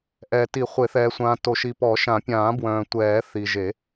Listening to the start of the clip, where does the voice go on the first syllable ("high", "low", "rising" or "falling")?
low